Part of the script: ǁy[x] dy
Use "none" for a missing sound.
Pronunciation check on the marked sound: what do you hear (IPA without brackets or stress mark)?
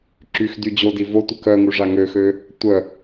x